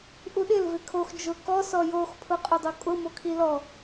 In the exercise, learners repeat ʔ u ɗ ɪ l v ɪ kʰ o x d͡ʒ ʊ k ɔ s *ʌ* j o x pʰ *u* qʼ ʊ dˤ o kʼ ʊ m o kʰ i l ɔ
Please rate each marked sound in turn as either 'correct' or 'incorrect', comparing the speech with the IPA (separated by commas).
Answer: incorrect, incorrect